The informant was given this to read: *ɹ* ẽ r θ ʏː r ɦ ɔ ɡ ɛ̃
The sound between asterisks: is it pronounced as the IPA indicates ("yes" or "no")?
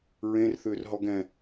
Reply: yes